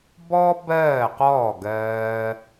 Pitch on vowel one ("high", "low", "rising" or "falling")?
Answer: high